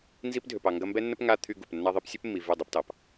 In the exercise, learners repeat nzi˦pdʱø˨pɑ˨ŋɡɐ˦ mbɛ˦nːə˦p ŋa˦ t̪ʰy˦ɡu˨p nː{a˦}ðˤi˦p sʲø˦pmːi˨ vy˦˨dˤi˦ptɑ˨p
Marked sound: correct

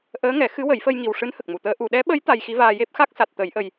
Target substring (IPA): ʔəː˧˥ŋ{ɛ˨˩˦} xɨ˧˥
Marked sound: correct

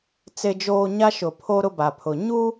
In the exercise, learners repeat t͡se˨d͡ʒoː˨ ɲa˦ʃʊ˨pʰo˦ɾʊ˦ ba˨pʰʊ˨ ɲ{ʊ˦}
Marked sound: incorrect: u˦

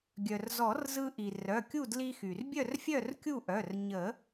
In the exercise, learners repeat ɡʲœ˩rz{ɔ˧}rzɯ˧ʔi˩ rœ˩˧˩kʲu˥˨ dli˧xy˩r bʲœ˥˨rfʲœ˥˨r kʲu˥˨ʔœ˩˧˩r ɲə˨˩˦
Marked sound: incorrect: ɔ˨˩˦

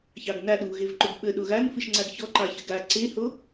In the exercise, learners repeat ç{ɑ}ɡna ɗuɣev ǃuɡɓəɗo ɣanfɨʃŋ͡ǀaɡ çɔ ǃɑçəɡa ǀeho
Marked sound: correct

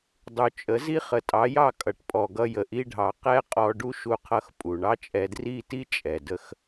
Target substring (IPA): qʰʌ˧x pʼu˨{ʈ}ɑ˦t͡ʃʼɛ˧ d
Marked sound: incorrect: ɳ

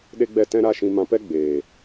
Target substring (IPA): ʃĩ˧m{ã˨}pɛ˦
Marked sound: incorrect: ã˧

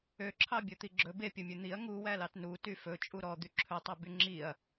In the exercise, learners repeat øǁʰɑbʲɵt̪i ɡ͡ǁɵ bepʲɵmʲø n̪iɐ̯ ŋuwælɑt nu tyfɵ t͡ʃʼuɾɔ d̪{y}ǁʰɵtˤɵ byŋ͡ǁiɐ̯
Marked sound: correct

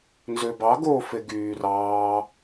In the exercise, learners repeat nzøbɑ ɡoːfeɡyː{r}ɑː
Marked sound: correct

